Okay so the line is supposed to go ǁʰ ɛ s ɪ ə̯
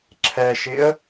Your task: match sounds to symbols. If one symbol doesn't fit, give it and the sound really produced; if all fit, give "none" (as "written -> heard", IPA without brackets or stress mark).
s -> ʃ